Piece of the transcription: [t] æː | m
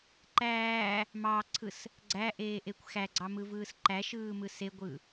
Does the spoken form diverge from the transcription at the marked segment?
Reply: yes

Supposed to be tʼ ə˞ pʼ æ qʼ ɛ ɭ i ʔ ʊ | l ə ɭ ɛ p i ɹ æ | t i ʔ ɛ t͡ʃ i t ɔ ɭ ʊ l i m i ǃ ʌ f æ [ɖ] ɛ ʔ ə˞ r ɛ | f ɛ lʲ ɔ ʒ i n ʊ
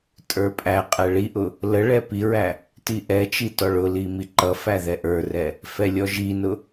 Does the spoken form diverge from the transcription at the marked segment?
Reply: yes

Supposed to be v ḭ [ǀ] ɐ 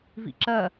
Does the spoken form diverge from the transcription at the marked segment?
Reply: yes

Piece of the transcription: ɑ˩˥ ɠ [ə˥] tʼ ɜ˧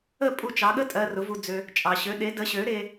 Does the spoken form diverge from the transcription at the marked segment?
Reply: no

